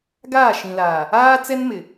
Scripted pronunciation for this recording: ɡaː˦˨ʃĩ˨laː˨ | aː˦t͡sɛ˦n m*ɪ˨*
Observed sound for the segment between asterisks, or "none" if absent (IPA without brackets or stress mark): ɪ˨